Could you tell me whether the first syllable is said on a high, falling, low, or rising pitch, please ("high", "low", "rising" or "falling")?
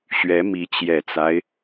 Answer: rising